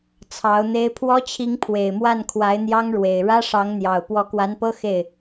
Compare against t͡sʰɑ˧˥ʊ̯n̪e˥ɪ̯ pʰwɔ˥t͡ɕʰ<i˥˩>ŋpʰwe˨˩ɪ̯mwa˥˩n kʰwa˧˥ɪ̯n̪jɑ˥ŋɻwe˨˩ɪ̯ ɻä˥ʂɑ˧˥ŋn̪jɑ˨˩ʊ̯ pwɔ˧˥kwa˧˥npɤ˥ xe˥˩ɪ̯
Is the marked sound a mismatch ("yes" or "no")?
yes